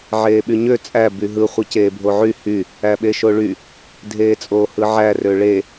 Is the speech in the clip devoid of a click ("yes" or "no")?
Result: yes